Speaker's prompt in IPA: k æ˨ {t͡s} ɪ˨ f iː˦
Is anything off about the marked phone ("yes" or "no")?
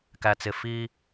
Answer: no